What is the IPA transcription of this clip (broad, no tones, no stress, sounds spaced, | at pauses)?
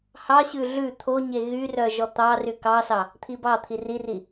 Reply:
h ɑ ɕ ʉ ɮ ʉ t̪ʰ o ɲ e ɣ y r œ ʒ ɔ t̪ ɑ r y k ɑ s ɑ | t̪ʰ i b ɑ t̪ʰ i r i r i